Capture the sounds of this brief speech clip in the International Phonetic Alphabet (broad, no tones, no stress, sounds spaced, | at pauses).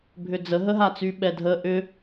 bʱ ʏ d͡z ə ɦ ə ɦ a t͡s y ɓ ɛ dʱ ə ʔ ʏ